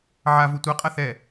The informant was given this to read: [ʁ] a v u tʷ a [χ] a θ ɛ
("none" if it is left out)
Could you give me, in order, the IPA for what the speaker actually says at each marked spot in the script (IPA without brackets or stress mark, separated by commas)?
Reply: ʕ, qʼ